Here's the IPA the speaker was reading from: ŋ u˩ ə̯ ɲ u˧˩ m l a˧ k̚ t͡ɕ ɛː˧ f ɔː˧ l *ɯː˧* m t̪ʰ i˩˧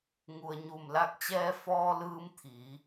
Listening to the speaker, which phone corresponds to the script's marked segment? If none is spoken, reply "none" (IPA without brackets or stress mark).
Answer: ɯː˧